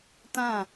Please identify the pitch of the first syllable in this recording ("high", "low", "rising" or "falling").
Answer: falling